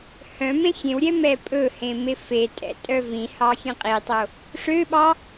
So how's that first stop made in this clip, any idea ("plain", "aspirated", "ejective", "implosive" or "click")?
ejective